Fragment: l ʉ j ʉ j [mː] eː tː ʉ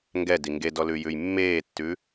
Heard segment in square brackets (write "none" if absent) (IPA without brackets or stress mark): mː